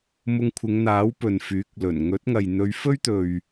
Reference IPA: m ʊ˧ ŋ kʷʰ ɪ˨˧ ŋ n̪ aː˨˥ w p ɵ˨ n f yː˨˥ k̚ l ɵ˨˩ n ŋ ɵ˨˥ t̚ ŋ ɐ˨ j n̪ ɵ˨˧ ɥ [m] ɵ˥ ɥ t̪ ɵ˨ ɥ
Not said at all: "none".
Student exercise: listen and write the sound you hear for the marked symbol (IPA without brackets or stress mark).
f